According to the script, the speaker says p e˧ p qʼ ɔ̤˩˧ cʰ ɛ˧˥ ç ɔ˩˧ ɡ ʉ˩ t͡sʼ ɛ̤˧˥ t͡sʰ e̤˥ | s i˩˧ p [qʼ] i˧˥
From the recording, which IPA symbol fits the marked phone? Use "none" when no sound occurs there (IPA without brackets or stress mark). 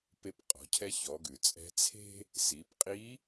qʼ